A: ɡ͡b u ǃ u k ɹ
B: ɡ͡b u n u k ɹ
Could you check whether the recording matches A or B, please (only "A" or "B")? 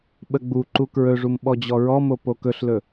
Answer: A